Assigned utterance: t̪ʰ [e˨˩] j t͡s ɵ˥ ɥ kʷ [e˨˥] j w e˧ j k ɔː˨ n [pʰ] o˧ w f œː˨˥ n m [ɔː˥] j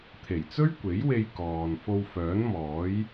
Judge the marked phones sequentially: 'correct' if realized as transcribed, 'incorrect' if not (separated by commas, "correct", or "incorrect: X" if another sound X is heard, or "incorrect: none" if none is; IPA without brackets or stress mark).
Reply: correct, correct, incorrect: f, incorrect: ɔː˨˥